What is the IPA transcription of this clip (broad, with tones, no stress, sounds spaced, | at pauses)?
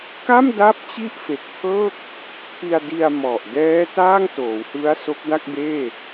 k a˥˩ m d a˦˥ p̚ t͡ɕ i˥˩ ʔ f e˨˩ k̚ pʰ ɤː˥˩ k̚ | pʰ i˧ a̯ d i˧ a̯ m ɔ˨˩ ʔ d ɛː˦˥ t aː˥˩ ŋ t oː˩˦ w h ɯ˦˥ a̯ s o˦˥ k̚ d a˥˩ k̚ b eː˥˩